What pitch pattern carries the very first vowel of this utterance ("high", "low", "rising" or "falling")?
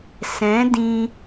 rising